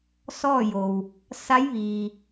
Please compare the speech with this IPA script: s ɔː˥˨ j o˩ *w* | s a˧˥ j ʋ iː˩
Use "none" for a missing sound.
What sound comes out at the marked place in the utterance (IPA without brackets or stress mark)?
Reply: w